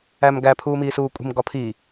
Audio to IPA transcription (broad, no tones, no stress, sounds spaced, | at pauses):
æ m ɡ æ pʰ uː m iː s uː kʷʼ i̤ m ɡ ɒ pʰ i